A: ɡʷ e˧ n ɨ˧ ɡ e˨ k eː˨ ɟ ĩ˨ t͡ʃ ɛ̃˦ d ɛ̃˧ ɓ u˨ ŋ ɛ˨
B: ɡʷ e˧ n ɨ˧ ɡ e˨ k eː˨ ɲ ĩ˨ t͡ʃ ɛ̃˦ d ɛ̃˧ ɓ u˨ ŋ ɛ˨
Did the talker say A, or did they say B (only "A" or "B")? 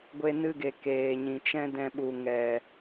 B